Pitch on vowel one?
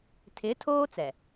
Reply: rising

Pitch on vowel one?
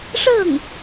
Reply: falling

